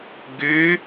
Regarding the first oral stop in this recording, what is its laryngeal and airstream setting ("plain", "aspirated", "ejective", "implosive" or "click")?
plain